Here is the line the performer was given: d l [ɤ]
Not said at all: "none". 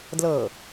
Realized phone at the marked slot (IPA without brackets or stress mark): ɤ